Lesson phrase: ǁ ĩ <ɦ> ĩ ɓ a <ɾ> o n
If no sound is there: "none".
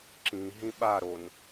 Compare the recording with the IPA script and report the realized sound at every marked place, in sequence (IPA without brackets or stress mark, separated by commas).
ɦ, ɾ